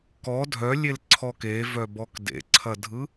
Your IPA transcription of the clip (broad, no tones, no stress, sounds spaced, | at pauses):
k ɔ dʱ œ lʲ e l ǀʰ ɔ k e v œ b ɔ k d ḛ ǀʰ ɐ dʱ ɯ